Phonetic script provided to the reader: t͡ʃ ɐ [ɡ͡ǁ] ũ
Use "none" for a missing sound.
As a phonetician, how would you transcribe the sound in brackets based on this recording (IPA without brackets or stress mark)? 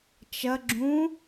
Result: ɡ͡ǁ